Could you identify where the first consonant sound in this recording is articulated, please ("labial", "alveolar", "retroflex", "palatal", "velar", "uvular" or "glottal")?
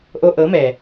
glottal